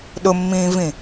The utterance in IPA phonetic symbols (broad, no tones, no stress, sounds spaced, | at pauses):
ɗ ʊ mː ĩː v ĩ